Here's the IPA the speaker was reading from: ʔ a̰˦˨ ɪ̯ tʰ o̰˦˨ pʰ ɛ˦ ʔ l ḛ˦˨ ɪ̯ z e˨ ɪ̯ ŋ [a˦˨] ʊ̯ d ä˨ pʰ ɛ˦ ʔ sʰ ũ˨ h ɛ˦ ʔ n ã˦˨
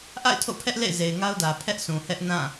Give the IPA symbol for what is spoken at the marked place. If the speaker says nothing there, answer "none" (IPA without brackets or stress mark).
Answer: a˦